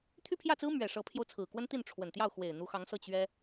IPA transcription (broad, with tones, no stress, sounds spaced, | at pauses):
t̪ʰ y˥˧ pʰ j ä˥˩ t͡s ɹ̩˥ m ɥ ɛ˨˩ ʂ ɤ˧˥ pʰ j o˧ ʊ̯ t͡sʰ ɹ̩˨˩ k w ə˥ n t̪ i˥˩ n ʈ͡ʂʰ w ə˨˩ n t̪ j ɑ˥˩ ʊ̯ x w e˨˩ ɪ̯ n̪ u˧˥ x ɑ˧˥ ŋ s ɤ˥˩ t͡ɕ ɥ ɛ˥